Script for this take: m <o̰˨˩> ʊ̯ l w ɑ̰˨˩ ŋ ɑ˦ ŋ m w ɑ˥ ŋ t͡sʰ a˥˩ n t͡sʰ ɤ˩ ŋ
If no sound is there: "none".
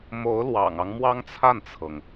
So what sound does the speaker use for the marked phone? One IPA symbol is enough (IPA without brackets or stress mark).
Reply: o˧˥